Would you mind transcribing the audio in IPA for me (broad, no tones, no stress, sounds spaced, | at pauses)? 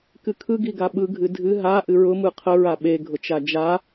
k ɨ kʰ ɯ ɡ i ɡ a ɓ ɯ ɡʱ ɨ dʱ ɨ ɦ a ʔ ɨ ɹ ʊ m ɯ qʰ ə ɹ a ɓ e ɡʱ ʊ t͡ʃ a d͡ʒ a